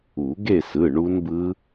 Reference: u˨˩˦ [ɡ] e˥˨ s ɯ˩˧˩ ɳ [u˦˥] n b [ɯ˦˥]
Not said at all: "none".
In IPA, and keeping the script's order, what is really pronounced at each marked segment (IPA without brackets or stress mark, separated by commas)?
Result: ɡ, u˦˥, ɯ˦˥